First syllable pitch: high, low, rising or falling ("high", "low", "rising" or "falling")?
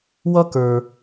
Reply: high